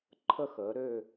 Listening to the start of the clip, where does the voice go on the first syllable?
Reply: falling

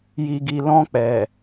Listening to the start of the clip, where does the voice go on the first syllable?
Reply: low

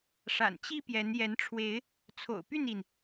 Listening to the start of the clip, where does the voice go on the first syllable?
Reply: low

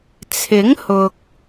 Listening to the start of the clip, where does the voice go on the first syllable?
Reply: rising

